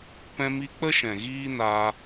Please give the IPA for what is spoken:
pɛ̃˧mi˧k͡pə˦ ʃɛ̃˨ɣiː˦naː˧

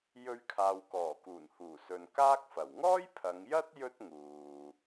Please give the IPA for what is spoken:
jɵ˧ɥkʰaː˨wkɔː˨˩ kuː˨˩nhuː˨˩sɵ˨n kaː˥k̚fɐ˨˩w ŋɔː˥jpʰɐ˨˧ŋjɐ˥t̚ jɵ˥t̚ŋuː˨

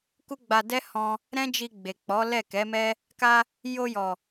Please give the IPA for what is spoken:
ku˦ɡ͡ba˧ dɛ˦hɔ̃˧ | ɾɛ̃˦d͡ʒi˧ ɡ͡be˨k͡pɔ˨˦ lɛ˦˨kɛ˨˦mɛ˦ | ka˧ | jo˧jɔ˨

